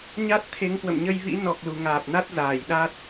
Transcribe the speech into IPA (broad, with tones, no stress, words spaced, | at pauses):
ɲa˦˥t̚t̪ʰe˨˦ŋkwə̰˧˨mɲə˧j vḭ˧˥nɔ˨˩k̚ lu˨˩ŋaː˨˩p̚na˦˥t̚zaː˧˩j ɗa˦˥t̚